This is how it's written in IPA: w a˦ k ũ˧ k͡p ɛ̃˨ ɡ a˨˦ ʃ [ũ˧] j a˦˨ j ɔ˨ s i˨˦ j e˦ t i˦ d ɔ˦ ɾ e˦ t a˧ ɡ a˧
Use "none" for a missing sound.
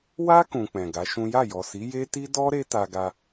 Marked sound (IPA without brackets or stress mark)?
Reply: ũ˦